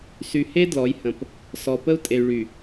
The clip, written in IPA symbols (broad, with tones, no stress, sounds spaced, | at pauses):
s y˨ h e˦ d l ɔ˨˦ j h ə̃˨ p | s ɔ˨ p ə˦ u̯ tʼ e˨ y̯ ɭ y˨